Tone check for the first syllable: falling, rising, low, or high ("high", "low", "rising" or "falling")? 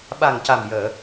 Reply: low